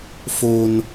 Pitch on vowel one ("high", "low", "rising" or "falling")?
high